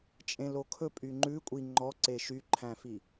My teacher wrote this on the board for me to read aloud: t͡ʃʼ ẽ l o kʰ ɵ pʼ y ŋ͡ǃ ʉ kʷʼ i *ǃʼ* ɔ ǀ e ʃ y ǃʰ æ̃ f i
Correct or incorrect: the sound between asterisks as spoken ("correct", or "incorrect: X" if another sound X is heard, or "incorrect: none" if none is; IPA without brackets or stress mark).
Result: incorrect: ŋ͡ǃ